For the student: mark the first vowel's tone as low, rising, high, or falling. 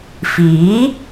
rising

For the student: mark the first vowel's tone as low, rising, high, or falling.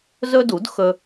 high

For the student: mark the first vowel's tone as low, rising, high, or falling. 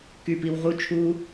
low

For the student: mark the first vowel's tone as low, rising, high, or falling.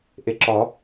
low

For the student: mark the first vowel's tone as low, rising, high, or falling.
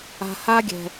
low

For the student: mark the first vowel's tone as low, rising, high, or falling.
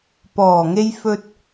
low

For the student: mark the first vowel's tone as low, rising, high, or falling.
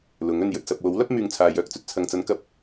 rising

